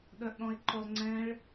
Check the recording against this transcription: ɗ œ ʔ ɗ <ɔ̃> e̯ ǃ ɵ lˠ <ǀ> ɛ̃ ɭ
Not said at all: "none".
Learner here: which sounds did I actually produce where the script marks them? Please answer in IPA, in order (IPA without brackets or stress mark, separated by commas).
ɔ̃, ŋ͡ǀ